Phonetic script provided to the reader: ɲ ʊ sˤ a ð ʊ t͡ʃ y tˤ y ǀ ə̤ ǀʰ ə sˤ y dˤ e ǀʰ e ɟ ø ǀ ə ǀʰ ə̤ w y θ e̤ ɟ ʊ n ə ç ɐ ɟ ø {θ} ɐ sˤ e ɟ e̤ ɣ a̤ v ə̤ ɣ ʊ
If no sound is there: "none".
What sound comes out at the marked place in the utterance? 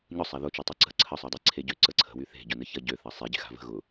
θ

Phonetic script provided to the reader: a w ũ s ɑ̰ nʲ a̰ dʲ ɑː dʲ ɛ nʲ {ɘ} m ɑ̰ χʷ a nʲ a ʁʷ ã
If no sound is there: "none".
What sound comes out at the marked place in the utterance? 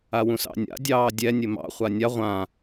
ɘ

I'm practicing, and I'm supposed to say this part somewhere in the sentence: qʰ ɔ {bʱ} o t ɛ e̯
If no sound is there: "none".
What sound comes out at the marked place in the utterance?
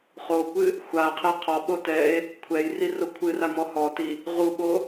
ɓ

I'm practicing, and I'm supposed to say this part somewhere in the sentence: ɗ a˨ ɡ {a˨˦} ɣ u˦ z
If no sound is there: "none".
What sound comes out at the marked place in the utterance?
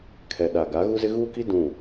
a˨˦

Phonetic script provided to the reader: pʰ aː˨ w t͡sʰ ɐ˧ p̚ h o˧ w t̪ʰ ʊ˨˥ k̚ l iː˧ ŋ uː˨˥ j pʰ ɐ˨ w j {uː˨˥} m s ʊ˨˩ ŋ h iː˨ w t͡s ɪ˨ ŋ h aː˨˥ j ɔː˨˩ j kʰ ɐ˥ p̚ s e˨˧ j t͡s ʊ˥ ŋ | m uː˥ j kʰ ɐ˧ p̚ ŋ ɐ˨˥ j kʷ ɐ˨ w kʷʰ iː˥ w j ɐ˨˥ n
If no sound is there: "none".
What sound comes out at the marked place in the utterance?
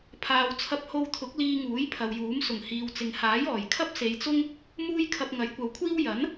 uː˨˥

